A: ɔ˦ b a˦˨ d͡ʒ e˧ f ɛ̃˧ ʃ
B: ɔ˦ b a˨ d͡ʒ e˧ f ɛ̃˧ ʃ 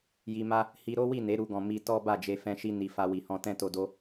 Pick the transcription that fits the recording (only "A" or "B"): A